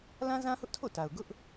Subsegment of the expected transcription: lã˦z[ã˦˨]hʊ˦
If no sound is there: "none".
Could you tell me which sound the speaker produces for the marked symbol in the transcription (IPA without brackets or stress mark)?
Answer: ã˦